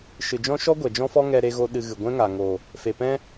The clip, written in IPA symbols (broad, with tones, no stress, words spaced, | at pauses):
ʃɨ˨d͡ʒɔ̃˦ʃɔ˦ ɡʷɛ˨d͡ʒɔ̃˦fɔ˦ ŋɛ˧ ɾe˦ɣo˦ɗɨ˧ɣɨ˨ ɡʷɛ̃˦ŋa˨ŋo˨ | fe˨pɛ̃˦